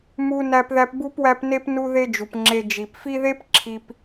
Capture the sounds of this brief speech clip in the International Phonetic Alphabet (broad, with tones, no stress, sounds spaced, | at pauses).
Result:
m u˦ n æ˦ p ð æ˦ p b u˥ p w æ˦ p n e˥ p n u˦ ð e˦ d͡ʒ u˩ p ŋ͡ǁ e˨ d͡ʒ i˩ p f i˦ ð e˥ p ǁʰ i˨ p